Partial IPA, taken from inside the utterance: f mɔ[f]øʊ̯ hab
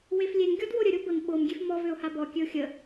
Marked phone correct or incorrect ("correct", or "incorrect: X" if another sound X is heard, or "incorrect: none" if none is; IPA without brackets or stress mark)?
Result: incorrect: v